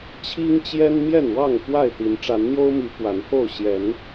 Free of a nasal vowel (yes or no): yes